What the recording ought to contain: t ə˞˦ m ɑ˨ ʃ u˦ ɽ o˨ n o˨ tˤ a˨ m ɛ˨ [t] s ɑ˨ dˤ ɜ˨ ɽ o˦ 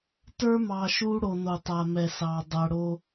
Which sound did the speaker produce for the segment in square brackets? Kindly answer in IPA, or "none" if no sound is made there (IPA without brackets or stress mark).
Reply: none